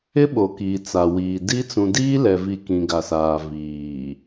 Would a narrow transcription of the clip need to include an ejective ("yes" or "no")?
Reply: no